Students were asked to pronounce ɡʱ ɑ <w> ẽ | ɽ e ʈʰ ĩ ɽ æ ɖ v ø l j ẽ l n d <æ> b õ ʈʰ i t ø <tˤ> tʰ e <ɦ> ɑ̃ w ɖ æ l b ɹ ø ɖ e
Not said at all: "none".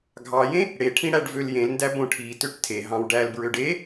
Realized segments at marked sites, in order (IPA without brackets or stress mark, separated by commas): j, æ, ʈ, ɦ